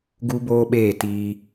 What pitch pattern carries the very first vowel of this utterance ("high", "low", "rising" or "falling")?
high